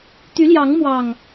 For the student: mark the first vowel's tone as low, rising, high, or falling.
rising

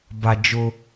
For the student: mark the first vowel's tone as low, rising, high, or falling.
low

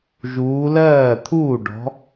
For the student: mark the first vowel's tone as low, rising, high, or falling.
rising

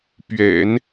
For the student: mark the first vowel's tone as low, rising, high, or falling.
low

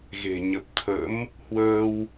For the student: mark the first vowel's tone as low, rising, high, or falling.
low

